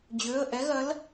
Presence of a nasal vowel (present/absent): absent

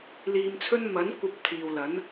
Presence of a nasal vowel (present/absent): absent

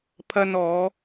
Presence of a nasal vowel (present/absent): absent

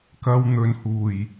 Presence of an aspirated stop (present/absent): absent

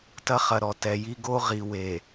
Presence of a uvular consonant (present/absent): present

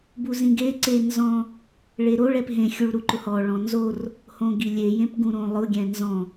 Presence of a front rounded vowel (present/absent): absent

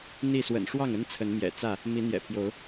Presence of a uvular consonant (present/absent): absent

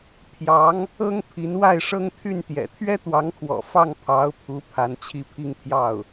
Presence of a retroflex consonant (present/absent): present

